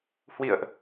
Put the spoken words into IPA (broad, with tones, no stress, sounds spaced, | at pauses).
h w ḭ˧˨ ə̯ ʔ